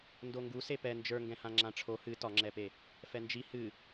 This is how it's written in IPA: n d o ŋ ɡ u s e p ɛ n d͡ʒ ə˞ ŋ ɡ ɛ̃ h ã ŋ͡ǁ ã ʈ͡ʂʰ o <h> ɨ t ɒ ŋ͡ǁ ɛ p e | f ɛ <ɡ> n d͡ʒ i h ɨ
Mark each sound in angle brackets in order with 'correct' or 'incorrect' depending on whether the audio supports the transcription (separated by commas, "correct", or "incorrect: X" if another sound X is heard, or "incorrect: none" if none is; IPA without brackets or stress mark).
correct, incorrect: none